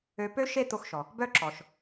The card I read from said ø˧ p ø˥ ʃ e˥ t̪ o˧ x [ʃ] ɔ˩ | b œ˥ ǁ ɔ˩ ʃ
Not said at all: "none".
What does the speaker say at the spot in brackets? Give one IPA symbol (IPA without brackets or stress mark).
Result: ʃ